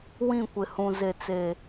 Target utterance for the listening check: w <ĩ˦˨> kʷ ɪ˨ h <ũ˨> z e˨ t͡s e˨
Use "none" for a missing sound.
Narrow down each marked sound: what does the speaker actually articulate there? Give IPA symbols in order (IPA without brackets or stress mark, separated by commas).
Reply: ĩ˦˨, ũ˨